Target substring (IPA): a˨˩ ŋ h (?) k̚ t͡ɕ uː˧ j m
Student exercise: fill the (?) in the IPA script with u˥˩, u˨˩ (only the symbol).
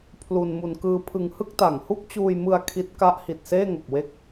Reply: u˥˩